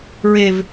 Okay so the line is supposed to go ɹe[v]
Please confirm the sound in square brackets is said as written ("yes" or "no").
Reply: yes